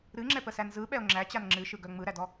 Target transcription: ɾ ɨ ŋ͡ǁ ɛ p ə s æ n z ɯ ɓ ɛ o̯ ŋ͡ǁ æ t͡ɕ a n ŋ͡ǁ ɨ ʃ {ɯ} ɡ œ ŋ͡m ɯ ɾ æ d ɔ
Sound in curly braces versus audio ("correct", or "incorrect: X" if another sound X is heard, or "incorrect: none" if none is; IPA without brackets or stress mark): correct